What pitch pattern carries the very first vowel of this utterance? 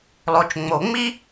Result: low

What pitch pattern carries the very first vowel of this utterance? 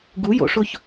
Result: rising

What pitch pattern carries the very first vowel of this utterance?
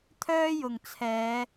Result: high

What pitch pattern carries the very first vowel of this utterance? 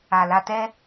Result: low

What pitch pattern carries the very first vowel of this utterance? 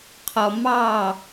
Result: low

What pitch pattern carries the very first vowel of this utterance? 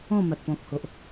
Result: falling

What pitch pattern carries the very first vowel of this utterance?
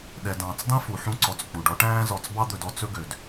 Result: low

